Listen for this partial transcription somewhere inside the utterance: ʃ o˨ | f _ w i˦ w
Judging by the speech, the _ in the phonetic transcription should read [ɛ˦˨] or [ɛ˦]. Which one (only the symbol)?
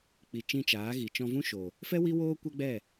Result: ɛ˦